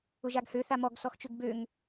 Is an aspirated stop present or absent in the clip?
absent